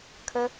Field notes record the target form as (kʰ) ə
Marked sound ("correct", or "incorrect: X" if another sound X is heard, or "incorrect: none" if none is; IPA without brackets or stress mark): correct